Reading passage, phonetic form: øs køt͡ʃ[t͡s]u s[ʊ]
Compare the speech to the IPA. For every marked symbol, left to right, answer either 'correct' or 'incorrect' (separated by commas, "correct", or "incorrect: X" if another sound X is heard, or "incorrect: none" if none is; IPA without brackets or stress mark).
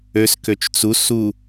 correct, incorrect: u